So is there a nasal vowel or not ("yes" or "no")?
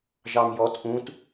yes